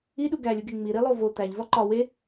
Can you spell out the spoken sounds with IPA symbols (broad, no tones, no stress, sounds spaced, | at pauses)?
i ɗ u ɡ æ lʲ u ɡ e ŋ͡m i ɾ i lˠ o v o t̪ æ ʎ v ɒ ǃ ɒ w e